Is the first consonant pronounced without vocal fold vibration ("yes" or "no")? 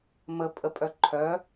no